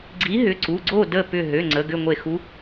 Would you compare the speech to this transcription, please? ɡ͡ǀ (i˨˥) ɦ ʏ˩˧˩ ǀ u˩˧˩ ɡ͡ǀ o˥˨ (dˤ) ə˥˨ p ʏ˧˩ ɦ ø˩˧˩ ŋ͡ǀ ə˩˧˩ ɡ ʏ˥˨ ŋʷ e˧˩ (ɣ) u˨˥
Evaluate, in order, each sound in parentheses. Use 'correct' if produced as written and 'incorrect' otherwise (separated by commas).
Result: correct, incorrect, incorrect